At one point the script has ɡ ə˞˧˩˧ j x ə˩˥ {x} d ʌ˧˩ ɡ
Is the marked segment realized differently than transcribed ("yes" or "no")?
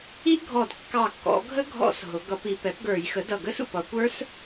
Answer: yes